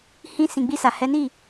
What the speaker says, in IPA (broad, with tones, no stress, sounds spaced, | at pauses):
h ĩ˧ s ĩ˨ ɡ͡b i˧ s a˨ h ɛ˨˦ n i˦˨